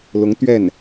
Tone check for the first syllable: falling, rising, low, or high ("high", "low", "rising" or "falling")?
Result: rising